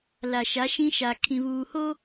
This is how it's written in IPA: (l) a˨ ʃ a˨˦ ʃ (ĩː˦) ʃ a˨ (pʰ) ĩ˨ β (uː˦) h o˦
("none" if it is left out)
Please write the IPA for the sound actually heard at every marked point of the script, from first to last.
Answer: l, ĩ˦, kʰ, uː˨

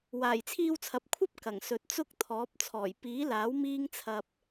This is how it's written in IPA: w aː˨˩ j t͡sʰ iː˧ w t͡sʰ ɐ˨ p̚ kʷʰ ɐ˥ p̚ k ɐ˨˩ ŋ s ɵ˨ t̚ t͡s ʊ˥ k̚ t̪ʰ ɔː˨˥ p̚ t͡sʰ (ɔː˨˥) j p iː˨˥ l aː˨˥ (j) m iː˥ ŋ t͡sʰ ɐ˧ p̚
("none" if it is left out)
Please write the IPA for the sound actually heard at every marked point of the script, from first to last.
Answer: ɔː˨˩, w

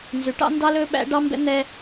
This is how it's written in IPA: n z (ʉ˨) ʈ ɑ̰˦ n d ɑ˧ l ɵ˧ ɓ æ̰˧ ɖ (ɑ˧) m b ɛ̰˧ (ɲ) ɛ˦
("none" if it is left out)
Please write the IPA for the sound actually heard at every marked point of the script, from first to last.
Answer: ʉ˨, ɑ˧, n̪

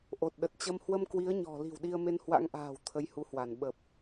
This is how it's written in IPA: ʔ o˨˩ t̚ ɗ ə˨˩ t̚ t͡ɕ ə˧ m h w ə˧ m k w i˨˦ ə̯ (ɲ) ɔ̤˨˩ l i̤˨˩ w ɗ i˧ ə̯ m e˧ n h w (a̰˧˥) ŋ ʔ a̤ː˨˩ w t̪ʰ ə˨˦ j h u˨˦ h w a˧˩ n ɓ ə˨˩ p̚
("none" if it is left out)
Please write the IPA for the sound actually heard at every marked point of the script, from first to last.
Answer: ɲ, a̰˧˥

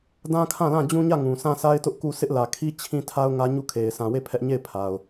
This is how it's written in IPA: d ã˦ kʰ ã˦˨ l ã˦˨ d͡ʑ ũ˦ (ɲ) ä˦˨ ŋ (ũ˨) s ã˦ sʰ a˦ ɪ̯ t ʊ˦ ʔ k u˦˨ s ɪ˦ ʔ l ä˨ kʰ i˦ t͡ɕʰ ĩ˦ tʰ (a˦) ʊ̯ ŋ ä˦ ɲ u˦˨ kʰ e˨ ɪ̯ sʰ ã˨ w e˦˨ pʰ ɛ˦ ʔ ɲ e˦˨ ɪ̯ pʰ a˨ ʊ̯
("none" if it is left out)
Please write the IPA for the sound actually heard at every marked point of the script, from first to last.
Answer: ɲ, ũ˨, a˦

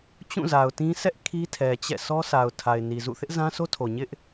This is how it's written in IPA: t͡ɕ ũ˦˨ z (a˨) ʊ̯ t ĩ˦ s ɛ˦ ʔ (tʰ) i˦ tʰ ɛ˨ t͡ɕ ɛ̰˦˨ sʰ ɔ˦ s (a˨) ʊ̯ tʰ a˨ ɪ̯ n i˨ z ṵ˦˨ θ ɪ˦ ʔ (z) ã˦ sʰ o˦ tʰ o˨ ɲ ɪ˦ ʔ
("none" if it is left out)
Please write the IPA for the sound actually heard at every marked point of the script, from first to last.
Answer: a˨, kʰ, a˨, z

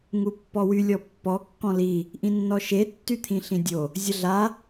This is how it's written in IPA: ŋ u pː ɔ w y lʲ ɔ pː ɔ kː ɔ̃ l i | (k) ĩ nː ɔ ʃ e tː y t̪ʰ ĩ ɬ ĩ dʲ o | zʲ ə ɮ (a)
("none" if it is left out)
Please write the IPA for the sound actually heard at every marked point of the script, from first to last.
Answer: ʔ, a

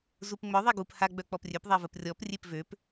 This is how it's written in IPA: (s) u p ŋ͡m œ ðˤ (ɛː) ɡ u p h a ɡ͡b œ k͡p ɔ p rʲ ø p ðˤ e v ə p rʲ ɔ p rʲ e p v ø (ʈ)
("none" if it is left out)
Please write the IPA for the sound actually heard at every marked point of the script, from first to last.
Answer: z, ɛ, p

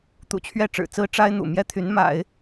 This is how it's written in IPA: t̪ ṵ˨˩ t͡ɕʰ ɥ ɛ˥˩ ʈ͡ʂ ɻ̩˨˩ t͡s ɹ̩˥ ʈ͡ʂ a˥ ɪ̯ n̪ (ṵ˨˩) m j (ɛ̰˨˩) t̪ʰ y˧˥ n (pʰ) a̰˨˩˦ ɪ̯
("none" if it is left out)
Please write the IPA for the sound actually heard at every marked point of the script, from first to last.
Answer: ṵ˨˩, ɛ˥, m

